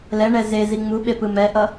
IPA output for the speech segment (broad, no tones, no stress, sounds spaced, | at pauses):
l ɛ ɳ ɛ z e z i ŋ͡m u ɓ e p ɯ m ɛ ʔ ʌ